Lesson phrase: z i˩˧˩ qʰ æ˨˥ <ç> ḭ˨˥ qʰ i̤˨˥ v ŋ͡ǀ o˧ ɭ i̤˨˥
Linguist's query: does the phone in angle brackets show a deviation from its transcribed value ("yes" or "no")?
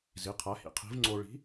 yes